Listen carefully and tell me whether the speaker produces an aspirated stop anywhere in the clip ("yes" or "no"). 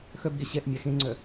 no